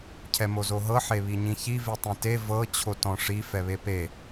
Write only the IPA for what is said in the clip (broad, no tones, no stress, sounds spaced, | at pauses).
cʰ ɛ m o z o ɦ ɤ ħ e β i ɲ ĩ ç i v i tˤ ĩ t e v ɤ t͡ɕʰ o t ɔ̃ ʂ i f ɛ β e p e